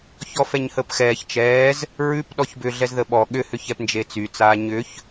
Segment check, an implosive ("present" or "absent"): present